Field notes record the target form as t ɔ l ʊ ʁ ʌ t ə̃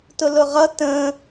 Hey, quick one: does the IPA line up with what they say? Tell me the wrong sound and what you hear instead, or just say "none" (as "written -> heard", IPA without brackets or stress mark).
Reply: ɔ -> ʊ